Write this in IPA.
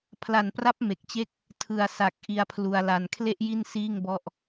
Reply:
pʰ l a˨˩ n p r a˦˥ p̚ m e˨˩ k̚ t͡ɕ e˦˥ k̚ | tʰ ɯ˨˩ a̯ s a˨˩ k̚ ʔ i˧ a̯ pʰ l u˧ a̯ l a˧ n kʰ l e˥˩ ʔ j i˥˩ n s iː˥˩ ŋ b ɔ˥˩ ʔ

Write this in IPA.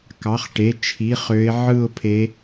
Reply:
k ɑ˩˧˩ χ ʈ e˩˧˩ t͡ʃʰ i˩˧˩ χ ø˨˦ ɪ̯ ʕ ɯ˦˨ ʊ̯ pʰ e˨˦

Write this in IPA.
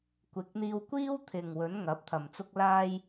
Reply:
kʷ ɪ˨˥ k̚ n̪ iː˧ w kʷ iː˥ w t̪ʰ ɪ˨ ŋ w ɵ˨˥ n ŋ ɐ˨˥ p̚ t̪ʰ ɐ˨ m t͡s ʊ˧ k̚ l aː˧ j

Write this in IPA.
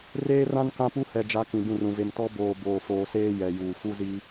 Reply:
r eː˦ r ã˦ n k ã˦ p u˦ h ɛ˨ d͡ʒ a˨˦ k ĩ˨ b ũ˦˨ r ũ˨ v e˨ m t ɔ˦ b oː˨ b oː˨ f oː˨ s eː˦ j ɛ˨ j uː˨ f u˦ z i˦

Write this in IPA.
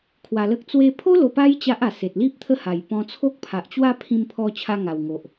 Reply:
kʰ w a˧ l ə˦ k̚ t͡s w e˧ pʰ o˦ l o˧ p a˦ j t͡ɕ a˦ ʔ a˨˩ s e˨ t̚ l i˦ p̚ t̪ʰ ə˥˧ h a˨˩ j p ɔ̃˧ t͡sʰ o˦ k̚ pʰ a˨ ʔ t͡ɕ w a˥˧ pʰ ĩ˧ m pʰ ɔ˧ t͡ɕʰ a˧ ŋ a˨˩ w ŋ o˨ ʔ

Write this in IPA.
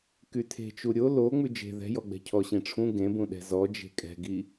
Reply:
k y tʰ e̤ t͡ʃ u ɾʲ o l o ŋ͡m ʉ d͡ʒ e̤ ð ɛ̤ j ɔ ɡ͡b ɛ̤ cʰ ɔ ɕ ĩ ʈ͡ʂʰ ũ ɡ ẽ b ũ ɗ ɛ̤ z ɔ d͡ʒ e̤ kʼ ɛ̤ ɡ i

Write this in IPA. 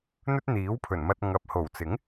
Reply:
n̪ ɵ˥ t̚ n̪ iː˨˥ w pʰ ɵ˨˩ n m ɐ˧ t̚ ŋ ɐ˨ p̚ h o˨˩ w t͡s ɪ˨˥ ŋ

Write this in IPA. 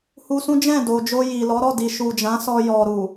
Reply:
h u˧ s ũ˦ d͡ʒ ɛ̃˦˨ d o˨ d͡ʒ o˧ j i˨ l ɔ˨˦ ɾ ɔ˦˨ d i˨ ʃ u˨ d͡ʒ ã˨˦ s ɔ˧ j ɔ˨ ɾ u˨

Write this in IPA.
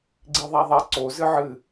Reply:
ɡ͡ǀ i ðˤ a ðˤ ɛ ǀ o z ɨ ʕ ɨ

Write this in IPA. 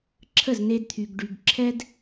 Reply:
ǁʰ ə˦˨ z n e˧ d t̪ʰ y˨ ɡ ɖ y˨ ɡ ǁʰ ɛ˦ d

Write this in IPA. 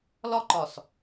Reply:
l ɒ ǃ ɒ s

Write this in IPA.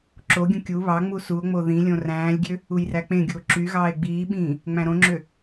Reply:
ǁ o ɡʲ ũ kʲ u β ɑ ŋ͡m u s u o̯ ŋ͡m o ð ĩ lʲ õ r æ̃ː lʲ ɡʲ ø | u j r æ k͡p ẽ ɡʲ u o̯ ǁ y ɣ ɑː e̯ ɡ͡b iː ɓ ĩː | ŋ͡m æ̃ ɾ õ ŋ͡ǁ ø

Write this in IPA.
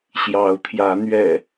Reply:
ɕ j ɑ˨˦ ʊ̯ t̪ʰ j ä˨˦ n̪ ɥ ɛ̰˨˩

